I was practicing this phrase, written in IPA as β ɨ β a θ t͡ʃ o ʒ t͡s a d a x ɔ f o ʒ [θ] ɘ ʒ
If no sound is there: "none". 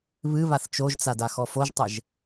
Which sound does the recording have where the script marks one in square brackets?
tˤ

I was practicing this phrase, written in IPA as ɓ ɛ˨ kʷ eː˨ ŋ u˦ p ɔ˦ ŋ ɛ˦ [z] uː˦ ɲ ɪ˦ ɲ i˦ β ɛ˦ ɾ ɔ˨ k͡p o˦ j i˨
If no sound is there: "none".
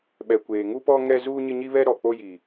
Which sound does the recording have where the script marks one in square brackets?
z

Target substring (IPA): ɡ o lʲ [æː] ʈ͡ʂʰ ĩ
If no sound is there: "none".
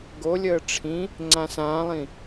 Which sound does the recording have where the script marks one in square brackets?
əː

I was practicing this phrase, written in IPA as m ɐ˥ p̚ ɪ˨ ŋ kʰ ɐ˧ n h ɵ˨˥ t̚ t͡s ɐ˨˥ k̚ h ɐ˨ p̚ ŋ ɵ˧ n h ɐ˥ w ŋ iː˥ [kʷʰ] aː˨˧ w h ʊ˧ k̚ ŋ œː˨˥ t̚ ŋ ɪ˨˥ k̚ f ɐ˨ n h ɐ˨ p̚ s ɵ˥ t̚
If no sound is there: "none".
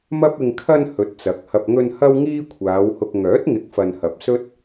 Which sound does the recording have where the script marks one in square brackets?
kʷʰ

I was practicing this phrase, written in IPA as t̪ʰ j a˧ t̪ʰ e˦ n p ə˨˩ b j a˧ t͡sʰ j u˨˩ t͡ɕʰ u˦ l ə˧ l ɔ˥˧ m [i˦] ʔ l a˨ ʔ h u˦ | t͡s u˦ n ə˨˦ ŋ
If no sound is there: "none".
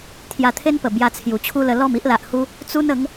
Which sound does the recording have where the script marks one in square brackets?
i˦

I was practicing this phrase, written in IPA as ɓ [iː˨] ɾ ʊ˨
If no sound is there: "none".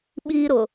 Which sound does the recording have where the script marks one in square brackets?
iː˦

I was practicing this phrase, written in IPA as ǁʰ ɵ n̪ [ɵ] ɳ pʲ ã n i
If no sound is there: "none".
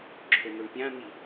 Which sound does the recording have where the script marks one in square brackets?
o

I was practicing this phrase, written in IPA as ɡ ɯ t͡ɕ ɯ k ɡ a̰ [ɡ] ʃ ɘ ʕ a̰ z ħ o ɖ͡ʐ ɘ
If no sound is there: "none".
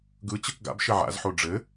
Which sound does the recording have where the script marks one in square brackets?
b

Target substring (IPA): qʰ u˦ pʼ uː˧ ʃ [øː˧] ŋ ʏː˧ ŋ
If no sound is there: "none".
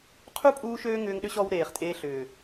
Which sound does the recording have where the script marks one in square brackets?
øː˧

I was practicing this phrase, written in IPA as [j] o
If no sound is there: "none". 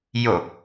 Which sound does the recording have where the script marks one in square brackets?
j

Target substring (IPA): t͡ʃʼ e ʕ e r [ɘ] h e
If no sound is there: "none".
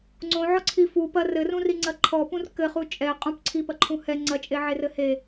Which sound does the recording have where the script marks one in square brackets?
ɘ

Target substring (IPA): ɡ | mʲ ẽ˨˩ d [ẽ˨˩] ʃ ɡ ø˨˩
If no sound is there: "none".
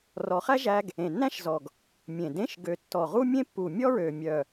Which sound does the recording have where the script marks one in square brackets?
ẽ˧˥˧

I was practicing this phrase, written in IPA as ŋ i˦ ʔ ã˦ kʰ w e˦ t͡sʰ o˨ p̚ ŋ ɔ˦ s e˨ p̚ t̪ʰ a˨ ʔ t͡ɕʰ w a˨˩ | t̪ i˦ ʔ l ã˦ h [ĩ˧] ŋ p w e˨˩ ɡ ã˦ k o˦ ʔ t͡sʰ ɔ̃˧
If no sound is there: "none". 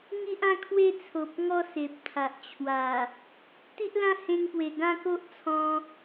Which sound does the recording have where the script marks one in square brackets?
ẽ˧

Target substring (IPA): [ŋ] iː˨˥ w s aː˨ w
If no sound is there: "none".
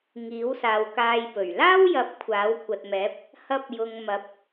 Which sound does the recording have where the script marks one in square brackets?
ŋ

